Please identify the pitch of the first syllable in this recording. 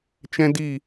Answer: high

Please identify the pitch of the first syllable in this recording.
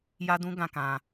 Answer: high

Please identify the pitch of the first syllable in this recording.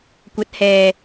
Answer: rising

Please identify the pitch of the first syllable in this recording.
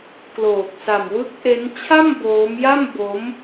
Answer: low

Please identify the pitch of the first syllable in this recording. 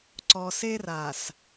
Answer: low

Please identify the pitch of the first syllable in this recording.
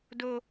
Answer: low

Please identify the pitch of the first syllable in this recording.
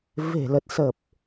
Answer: low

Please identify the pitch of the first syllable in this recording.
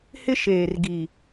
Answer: high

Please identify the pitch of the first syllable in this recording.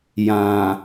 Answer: low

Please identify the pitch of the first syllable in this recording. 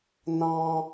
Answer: high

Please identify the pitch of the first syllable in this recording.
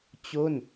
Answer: falling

